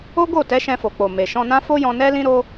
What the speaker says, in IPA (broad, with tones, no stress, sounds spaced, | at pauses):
o˦ ɡ o˦˨ t ɛ˨˦ ʃ ɛ̃˧ f o˨ k͡p o˨ m e˨ ʃ ɔ̃˧ n ã˦ f o˦ j ɔ̃˧ n ɛ˦ l ĩ˦ ɾ o˦